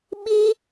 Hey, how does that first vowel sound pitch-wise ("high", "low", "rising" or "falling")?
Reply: high